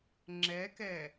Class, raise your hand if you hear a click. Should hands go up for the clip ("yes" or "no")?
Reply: yes